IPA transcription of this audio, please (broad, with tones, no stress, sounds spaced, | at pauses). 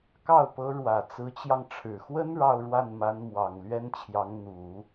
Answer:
k ɑ˥˩ ʊ̯ p ɤ˧˥ ɻ w ä˨˩ t͡s ɹ̩˧˥ t͡ɕ j ɑ˧ ŋ ʈ͡ʂʰ ɻ̩˨˩ x w ə˥ n ɻ ɑ˥˧ ʊ̯ ɻ w a˥˩ n m a˧˥ n m w ɑ˨˩ ŋ l ɥ ɛ˥ n t͡ɕʰ j ɑ˧˥ ŋ n̪ u˨˩˦